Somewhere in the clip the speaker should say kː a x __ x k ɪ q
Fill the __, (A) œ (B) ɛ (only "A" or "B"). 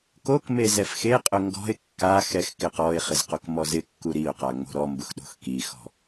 B